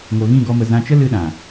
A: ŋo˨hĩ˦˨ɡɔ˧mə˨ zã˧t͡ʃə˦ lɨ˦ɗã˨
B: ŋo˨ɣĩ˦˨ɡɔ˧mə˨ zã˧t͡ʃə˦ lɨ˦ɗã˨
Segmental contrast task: B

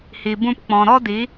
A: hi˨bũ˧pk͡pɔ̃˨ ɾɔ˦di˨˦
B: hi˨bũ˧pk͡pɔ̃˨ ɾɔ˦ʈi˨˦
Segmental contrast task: A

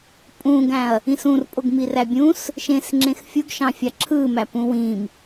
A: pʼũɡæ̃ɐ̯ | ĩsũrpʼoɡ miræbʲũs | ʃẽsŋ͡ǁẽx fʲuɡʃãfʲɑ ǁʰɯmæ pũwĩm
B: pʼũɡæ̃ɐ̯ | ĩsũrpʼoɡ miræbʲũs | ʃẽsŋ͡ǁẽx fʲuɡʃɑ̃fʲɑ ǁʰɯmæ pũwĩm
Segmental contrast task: B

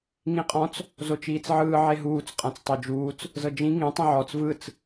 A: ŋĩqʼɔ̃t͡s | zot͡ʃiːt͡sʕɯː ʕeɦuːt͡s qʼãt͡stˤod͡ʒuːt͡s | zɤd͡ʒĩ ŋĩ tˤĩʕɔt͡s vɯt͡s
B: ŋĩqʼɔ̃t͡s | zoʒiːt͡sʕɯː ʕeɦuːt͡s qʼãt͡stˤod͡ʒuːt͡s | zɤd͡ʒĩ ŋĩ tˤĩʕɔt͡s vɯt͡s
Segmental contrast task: A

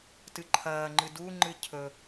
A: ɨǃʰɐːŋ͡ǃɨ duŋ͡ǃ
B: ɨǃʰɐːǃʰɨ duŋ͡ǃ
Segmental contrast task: A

